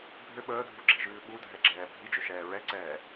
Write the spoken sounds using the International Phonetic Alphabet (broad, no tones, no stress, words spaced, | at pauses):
bʱʏ ɓəːdʱuɡ͡ǁiʒʉː ɓudʱɛɡ͡ǁɛː bʱid͡ʒʏʃɛː ɹɛǀɛː